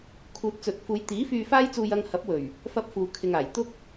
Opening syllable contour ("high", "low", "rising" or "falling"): low